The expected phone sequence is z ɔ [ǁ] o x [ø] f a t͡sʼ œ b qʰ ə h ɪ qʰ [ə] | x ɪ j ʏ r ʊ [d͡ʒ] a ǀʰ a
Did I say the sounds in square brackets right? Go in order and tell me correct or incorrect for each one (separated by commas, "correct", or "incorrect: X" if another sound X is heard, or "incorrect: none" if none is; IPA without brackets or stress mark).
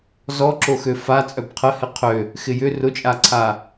correct, correct, incorrect: ø, incorrect: t͡ʃʼ